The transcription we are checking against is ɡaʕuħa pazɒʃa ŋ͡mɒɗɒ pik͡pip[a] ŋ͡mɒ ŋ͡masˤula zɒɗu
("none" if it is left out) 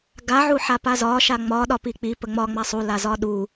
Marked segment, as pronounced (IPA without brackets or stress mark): ə